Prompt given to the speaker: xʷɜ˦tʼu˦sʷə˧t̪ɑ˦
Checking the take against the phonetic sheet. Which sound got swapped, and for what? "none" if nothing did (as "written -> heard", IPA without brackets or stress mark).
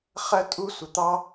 xʷ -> χ